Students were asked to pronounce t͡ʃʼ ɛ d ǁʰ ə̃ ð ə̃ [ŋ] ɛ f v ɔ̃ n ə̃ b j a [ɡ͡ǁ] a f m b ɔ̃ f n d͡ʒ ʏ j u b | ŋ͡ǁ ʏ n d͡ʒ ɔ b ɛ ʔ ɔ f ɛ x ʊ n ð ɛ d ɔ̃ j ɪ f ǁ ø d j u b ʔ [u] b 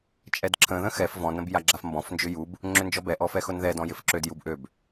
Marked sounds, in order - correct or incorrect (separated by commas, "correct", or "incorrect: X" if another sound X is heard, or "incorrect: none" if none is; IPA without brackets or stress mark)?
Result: incorrect: x, correct, incorrect: ø